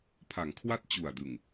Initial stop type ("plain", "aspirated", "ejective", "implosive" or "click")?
aspirated